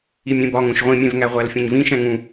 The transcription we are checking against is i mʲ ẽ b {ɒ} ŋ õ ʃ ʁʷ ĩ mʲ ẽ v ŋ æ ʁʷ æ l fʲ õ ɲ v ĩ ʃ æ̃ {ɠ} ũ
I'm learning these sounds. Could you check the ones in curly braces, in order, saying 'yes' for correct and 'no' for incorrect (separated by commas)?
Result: yes, no